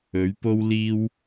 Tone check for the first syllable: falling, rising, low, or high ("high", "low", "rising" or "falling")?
rising